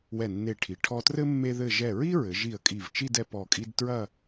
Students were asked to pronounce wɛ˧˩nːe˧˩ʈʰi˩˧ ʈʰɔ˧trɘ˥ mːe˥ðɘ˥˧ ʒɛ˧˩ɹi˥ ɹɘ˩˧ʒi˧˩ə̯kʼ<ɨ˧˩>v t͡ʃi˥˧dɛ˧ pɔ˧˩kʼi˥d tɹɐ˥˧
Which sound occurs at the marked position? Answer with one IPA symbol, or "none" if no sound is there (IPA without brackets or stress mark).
i˧˩